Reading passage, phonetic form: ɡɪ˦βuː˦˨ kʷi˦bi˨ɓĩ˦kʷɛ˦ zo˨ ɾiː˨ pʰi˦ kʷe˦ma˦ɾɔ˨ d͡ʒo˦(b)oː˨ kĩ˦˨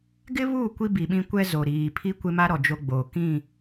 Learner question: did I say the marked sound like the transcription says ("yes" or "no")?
no